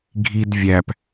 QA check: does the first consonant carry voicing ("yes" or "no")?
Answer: yes